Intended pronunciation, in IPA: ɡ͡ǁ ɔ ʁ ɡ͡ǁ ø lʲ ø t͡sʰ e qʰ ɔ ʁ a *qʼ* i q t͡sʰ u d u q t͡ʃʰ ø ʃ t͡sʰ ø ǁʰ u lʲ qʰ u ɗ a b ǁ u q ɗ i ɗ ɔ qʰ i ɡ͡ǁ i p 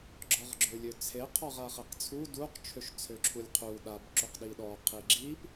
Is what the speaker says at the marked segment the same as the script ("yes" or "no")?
no